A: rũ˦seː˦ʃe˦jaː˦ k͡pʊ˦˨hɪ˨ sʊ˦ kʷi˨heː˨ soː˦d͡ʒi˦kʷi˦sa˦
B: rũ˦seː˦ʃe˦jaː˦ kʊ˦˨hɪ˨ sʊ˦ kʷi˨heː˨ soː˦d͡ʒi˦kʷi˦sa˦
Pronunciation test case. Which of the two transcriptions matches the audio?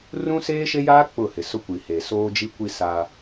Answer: A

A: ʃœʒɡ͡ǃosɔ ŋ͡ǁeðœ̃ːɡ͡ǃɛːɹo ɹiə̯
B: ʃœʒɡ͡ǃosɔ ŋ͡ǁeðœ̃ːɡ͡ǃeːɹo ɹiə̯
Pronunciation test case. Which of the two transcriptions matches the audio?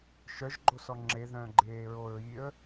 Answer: B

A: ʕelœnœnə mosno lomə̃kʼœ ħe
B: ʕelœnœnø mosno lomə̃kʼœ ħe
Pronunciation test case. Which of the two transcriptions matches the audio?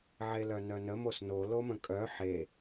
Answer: A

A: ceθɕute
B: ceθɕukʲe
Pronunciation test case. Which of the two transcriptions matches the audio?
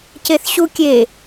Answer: B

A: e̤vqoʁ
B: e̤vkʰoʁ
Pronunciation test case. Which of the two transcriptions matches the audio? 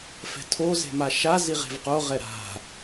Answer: A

